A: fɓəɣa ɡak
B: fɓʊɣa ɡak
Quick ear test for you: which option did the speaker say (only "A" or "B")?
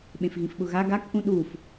B